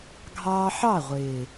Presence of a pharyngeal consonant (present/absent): present